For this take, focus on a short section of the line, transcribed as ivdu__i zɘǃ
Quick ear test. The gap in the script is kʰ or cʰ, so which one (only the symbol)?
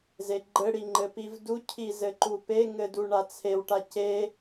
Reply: cʰ